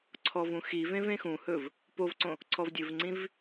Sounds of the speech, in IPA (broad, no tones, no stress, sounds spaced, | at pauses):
ǀʰ ɔ v ũ x i v ẽ v ẽ x ũ h ɵ v | p o v ǀ õ | ǀʰ ɔ v dʲ ɵ v ŋ͡ǀ ĩ v